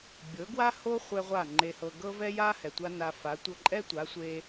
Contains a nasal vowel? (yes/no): no